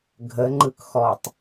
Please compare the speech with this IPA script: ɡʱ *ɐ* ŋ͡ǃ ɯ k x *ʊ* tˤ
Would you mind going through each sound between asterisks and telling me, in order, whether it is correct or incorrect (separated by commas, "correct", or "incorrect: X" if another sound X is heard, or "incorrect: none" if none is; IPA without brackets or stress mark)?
incorrect: ə, incorrect: ɔ